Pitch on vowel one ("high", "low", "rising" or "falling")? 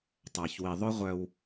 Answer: low